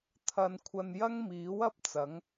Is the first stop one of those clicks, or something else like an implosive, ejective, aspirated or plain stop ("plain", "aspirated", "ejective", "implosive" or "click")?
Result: aspirated